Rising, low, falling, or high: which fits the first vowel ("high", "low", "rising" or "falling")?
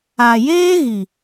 low